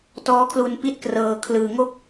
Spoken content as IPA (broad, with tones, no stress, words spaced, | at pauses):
tɔː˦˥kʰlu˧npi˦˥t̚ krɤː˧kʰlɯː˧ ŋo˥˩k̚